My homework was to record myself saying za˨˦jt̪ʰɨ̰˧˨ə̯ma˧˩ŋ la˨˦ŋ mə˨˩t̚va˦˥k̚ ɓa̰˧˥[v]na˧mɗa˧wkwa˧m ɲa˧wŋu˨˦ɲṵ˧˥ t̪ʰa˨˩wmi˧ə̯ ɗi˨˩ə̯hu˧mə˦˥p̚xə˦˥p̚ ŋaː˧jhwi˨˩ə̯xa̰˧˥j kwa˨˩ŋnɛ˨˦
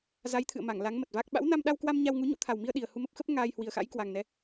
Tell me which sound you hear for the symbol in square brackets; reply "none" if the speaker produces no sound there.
w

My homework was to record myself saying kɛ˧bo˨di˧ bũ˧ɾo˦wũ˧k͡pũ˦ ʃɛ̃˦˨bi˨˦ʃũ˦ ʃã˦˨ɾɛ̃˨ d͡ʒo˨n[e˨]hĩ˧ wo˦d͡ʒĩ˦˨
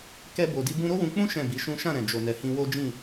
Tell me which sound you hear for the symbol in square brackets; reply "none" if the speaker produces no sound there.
ɛ˨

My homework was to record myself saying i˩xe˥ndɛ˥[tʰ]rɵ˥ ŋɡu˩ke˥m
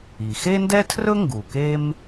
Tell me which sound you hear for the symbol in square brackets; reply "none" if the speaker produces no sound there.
tʰ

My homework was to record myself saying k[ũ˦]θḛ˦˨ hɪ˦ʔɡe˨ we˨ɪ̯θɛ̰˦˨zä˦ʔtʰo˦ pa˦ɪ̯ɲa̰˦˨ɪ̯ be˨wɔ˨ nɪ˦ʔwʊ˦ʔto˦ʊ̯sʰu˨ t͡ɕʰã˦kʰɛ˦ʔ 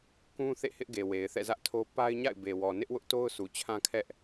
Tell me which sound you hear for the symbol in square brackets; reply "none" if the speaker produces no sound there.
ũ˦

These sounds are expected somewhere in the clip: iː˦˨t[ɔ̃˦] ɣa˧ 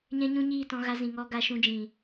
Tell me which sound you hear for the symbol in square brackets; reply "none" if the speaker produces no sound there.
ɔ̃˧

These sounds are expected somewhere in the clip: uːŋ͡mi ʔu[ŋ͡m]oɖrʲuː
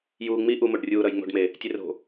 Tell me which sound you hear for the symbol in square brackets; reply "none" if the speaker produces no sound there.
m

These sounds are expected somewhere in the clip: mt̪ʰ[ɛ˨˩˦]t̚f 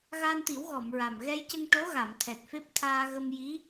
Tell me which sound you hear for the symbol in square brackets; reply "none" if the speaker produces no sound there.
ɛ˨˩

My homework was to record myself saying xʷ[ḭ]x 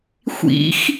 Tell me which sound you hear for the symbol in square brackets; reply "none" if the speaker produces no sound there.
ḭ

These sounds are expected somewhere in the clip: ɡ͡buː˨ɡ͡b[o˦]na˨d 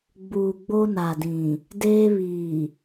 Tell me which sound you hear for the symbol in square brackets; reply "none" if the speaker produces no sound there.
o˦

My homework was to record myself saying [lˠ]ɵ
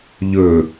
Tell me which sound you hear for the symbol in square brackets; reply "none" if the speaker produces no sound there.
ʎ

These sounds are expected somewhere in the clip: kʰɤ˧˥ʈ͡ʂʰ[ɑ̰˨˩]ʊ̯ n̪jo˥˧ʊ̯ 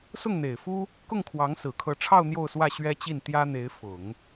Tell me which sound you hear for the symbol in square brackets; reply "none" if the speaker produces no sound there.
ɑ˥˧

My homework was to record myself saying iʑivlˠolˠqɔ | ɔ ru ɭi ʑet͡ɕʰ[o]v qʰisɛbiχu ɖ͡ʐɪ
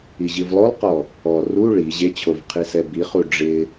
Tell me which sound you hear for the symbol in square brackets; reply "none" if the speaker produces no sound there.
o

